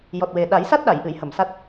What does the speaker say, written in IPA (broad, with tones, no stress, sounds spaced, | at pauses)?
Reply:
j ɔ˨˩ t̚ w e˨˩ ɗ a˨˩˦ j s a˦˥ t̚ ɗ a˨˩˨ j ʔ ɨ˨˩˨ j h ə˨˩˨ m s a˦˥ t̚